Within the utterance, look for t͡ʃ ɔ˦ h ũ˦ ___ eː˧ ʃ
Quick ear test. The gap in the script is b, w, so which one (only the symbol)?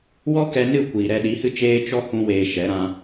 w